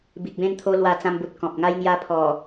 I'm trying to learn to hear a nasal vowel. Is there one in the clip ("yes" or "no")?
yes